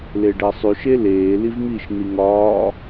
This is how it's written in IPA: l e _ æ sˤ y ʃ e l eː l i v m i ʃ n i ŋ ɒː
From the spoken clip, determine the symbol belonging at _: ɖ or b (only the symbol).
ɖ